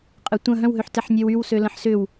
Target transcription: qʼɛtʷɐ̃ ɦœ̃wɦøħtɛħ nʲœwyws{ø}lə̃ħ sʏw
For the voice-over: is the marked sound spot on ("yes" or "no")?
yes